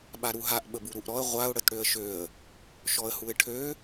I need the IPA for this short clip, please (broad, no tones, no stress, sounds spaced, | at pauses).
ɓ a ɾ u ɦ a ʔ ɓ ə b u ɾ u ʔ ɾ ɔ ə̯ ʁʷ a ʊ̯ ɽ ə t ɽ ø ə̯ ʃ ø ə̯ | ʃ ɔ ə̯ h u ɪ̯ ʈʰ ø